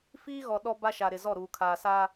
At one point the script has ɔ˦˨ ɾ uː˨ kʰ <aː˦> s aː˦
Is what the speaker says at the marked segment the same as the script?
no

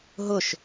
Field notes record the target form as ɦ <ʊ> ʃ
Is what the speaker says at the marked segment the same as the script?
yes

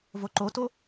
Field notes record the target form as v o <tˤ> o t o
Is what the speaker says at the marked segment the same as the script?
no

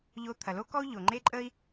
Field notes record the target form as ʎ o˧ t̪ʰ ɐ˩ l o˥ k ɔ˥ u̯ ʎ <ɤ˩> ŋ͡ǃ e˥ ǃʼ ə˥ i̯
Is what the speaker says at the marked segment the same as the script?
no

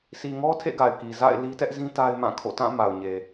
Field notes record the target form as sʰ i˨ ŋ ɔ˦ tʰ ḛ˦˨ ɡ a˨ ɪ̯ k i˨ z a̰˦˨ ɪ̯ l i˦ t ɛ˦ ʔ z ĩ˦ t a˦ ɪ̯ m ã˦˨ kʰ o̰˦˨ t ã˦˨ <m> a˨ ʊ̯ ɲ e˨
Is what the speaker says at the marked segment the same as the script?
yes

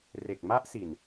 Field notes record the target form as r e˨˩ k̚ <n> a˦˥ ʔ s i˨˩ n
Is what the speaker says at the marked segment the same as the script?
no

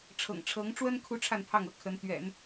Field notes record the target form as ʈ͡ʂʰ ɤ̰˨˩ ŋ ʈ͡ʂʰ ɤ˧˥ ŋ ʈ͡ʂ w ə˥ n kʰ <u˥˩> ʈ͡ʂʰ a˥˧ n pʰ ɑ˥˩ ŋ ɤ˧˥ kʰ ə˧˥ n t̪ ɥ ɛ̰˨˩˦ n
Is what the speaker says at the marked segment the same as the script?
no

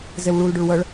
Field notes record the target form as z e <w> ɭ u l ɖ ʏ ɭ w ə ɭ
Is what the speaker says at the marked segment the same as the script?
yes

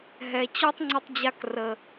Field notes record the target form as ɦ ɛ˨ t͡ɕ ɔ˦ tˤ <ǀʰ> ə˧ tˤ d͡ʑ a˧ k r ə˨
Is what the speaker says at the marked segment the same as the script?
no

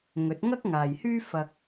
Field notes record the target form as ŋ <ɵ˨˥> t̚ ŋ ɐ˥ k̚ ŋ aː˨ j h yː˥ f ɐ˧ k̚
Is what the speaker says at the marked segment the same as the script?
yes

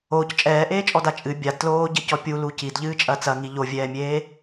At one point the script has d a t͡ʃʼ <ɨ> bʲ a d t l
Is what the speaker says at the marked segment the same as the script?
yes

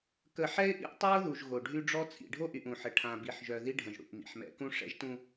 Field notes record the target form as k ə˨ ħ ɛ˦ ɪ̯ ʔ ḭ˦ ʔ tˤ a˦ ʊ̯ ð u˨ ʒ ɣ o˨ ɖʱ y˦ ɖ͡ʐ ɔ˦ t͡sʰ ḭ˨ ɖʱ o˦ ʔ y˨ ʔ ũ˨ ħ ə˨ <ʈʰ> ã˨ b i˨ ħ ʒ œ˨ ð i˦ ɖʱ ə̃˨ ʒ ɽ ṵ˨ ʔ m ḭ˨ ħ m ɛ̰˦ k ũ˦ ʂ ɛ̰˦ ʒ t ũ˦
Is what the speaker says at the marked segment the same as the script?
yes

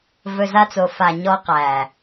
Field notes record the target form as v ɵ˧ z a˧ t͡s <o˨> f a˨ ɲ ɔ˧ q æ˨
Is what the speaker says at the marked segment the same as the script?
yes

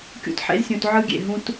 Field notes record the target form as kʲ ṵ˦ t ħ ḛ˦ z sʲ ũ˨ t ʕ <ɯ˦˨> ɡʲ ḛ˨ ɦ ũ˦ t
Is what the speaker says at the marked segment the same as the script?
no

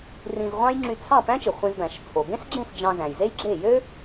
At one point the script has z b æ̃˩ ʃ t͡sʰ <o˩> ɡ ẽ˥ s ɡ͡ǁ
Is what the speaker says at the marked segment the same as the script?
yes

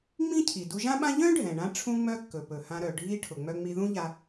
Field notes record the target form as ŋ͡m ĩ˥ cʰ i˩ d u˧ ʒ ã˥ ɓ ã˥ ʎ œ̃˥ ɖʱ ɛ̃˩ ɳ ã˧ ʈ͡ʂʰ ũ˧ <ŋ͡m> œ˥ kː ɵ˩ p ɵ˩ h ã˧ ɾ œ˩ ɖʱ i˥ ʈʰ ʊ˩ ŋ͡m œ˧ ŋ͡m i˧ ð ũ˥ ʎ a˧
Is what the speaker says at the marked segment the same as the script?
yes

